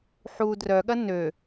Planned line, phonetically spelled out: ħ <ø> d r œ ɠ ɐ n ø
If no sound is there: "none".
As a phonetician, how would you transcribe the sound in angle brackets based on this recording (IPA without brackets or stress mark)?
u